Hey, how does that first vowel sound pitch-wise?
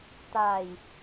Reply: low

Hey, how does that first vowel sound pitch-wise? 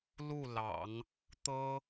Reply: falling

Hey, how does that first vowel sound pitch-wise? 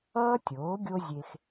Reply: high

